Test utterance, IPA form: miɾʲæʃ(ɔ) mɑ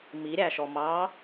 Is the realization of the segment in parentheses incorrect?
no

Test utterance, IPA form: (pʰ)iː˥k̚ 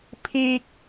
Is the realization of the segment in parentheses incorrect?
no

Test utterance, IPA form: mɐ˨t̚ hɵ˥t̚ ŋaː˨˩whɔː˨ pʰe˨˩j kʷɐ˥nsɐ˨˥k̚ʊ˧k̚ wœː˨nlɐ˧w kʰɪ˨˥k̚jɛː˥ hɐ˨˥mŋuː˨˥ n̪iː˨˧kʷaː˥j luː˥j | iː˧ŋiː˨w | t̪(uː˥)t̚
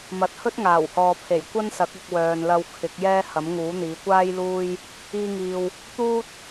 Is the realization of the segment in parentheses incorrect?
no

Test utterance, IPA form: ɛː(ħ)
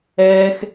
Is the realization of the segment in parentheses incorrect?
yes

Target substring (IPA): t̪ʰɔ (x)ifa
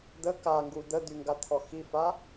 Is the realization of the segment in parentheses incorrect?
no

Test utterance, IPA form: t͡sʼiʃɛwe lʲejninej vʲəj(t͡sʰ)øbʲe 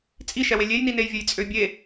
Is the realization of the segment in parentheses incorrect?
yes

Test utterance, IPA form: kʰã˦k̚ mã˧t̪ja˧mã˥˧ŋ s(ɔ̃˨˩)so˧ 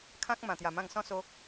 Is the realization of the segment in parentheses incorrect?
yes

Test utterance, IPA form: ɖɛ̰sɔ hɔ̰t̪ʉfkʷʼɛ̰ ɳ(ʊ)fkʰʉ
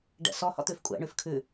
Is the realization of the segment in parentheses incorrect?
yes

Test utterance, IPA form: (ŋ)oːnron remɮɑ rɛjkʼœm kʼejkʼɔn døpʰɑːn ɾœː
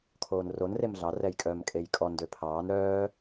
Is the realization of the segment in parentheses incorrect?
yes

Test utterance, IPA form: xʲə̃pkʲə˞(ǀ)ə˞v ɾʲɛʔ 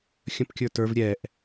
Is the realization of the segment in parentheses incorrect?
yes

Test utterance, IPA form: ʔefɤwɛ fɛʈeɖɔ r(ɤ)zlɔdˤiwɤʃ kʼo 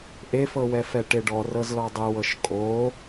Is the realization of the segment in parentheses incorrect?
no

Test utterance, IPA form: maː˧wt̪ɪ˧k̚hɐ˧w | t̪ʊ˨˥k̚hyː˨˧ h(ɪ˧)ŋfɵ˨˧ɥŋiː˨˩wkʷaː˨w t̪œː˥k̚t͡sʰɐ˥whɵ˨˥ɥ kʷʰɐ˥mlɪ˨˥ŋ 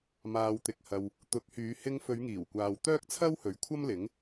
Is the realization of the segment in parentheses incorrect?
no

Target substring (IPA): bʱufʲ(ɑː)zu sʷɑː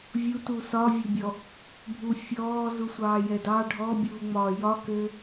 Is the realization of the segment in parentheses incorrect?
yes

